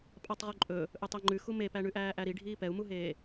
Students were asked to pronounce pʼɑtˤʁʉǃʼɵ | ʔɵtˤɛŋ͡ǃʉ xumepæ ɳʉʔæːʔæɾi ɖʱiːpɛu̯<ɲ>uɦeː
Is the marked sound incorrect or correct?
incorrect